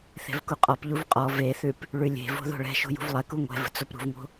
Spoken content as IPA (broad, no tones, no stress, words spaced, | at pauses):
θe̤vkuqʼɔpʎuv qʼɔ veθʉp | ɭʉlʲe̤vo̤ ðo̤ɭɛ̤ʃo̤ jṳvlˠɛku ŋʷɛ̤və̤ t͡sopɾṳvŋo̤